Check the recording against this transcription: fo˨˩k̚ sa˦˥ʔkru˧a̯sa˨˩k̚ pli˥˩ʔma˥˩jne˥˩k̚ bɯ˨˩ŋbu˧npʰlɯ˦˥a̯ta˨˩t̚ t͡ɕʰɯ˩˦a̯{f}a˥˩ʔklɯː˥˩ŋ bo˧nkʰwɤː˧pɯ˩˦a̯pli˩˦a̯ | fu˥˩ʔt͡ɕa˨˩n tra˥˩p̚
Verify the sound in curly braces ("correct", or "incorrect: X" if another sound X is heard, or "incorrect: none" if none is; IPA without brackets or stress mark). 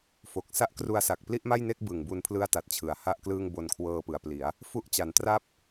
incorrect: h